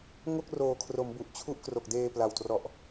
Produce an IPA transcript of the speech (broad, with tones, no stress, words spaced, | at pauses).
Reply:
ŋo˥˩k̚roː˨˩kʰro˩˦mbu˨˩ʔ t͡ɕʰu˥˩ʔkro˨˩k̚deː˧ pla˨˩wtrɔ˨˩ʔ